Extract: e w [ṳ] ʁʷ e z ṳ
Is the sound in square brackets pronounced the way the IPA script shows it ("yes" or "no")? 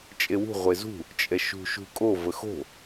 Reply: yes